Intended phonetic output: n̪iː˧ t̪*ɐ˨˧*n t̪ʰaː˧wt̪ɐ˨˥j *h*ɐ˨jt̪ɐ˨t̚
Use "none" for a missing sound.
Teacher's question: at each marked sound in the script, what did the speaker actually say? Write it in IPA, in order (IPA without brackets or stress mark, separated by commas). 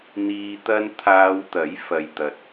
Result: ɐ˧, f